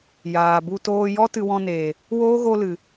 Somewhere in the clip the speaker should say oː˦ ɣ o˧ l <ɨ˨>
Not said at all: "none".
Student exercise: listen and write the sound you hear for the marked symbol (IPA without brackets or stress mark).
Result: ɨ˨